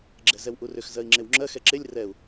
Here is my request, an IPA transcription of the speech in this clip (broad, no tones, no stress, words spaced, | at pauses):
ɡ͡ǁɛzɛwʔurʏx zɜi̯ŋ͡ǁewŋ͡ǁɜ xɛǁelʲ rɛu̯